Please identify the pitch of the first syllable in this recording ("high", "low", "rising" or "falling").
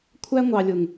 high